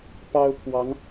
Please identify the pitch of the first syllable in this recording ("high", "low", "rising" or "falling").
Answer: high